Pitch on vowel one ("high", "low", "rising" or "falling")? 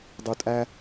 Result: low